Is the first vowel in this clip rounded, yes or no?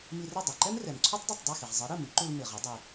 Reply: no